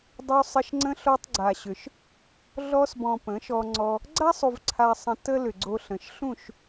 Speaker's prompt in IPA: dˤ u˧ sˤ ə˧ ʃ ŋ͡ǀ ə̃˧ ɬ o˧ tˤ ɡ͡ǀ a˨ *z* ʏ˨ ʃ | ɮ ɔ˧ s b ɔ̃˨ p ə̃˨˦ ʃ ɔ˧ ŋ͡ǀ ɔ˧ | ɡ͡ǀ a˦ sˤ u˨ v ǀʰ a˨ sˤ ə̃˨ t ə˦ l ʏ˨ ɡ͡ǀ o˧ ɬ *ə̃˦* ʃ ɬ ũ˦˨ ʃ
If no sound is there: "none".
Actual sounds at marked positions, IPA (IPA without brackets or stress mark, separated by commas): ɕ, ə̃˨